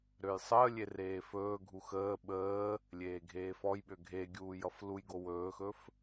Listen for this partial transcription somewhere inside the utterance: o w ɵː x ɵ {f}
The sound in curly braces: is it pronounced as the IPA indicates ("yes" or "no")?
yes